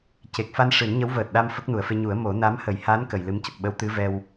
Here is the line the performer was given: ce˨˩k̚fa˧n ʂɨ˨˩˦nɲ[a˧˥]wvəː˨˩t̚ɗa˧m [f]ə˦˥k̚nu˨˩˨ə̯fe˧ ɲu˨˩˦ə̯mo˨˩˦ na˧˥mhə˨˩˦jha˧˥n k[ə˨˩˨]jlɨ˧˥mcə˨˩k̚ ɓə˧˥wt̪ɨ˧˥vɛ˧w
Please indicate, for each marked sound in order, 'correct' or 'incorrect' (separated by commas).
incorrect, correct, correct